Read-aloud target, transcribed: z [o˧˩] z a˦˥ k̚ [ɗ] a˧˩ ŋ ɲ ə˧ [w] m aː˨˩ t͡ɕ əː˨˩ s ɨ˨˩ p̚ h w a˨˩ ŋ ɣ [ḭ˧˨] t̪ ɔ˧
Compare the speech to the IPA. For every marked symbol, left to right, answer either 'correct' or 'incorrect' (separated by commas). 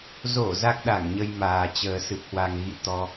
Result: correct, correct, incorrect, correct